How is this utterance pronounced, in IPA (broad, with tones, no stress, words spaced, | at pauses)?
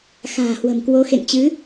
xa̤ː˨˩hwə̤˨˩mkwo˨˦ xḛ˧˨ŋt͡ɕɨ˨˦